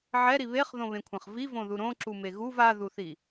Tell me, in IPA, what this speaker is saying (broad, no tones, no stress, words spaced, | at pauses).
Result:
ʕɛɾi βeχðõβẽkʷʰɛ̃χ vivõðu ɾõǁume ɣuv aðuθi